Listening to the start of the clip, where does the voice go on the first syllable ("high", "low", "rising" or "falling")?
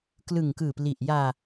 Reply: low